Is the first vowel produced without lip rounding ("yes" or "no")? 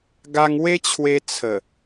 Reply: yes